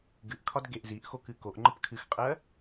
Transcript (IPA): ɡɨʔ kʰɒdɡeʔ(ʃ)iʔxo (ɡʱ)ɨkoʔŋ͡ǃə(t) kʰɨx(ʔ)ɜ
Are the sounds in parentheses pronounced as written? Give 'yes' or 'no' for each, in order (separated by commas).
no, no, no, no